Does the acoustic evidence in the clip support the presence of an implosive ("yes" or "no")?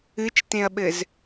yes